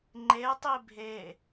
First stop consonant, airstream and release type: click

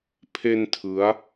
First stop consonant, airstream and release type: aspirated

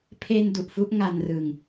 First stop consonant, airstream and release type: aspirated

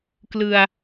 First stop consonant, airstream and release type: plain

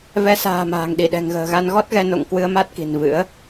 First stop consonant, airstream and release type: implosive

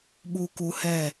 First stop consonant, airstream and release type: implosive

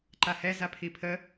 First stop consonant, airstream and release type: click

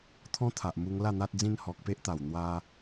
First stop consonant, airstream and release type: aspirated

